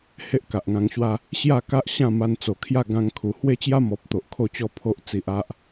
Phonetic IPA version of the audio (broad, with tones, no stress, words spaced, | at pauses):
he˦ʔka˨ʔŋã˧ŋɕwa˦ | ɕja˥˧ka˦ʔ ɕã˥˧ma˧nt͡so˨˩kʰja˥˧ ɡã˦ŋ kʰu˨˩ hwe˦t͡ɕja˦mɔ˨p̚ t̪o˨ʔkʰo˥˧t͡ɕɔ˦ pʰo˦ʔt͡si˨ʔa˦ʔ